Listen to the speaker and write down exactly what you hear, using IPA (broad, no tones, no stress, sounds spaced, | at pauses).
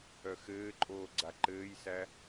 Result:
œ x ɘː ǃʼ oː ɡ͡ǀ a ǃ ɘː j s æ